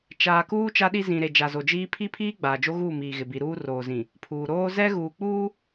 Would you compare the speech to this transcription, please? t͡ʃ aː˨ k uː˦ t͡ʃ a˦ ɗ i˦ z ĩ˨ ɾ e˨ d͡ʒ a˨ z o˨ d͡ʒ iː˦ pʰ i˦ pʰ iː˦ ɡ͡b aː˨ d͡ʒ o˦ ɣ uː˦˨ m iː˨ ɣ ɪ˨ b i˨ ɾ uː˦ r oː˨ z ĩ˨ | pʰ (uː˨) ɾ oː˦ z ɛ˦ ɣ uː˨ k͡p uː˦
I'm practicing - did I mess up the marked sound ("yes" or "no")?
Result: no